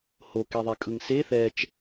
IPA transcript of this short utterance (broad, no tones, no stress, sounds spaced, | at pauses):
h o k e ðˤ ɛ kʼ ɯ ŋ s e θ ɛ t͡ʃ